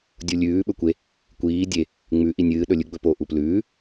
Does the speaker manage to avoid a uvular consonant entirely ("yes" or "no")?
yes